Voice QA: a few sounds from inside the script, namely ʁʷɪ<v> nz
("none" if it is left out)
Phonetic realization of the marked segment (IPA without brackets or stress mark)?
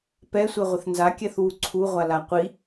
θ